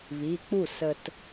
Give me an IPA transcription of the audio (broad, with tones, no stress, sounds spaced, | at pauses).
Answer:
β i˩˧˩ k͡p u˥˩ s ə˧ t